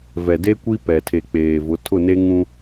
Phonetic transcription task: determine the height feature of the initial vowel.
mid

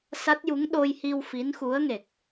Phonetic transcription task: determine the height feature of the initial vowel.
low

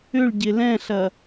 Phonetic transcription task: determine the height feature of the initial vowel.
high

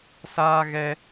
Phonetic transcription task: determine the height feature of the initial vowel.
low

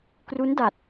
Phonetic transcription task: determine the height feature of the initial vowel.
high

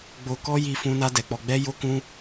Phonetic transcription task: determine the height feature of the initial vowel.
mid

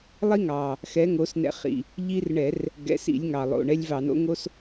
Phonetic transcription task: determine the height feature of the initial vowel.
high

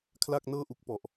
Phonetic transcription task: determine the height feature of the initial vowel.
low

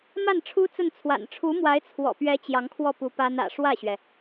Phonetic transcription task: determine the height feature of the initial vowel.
low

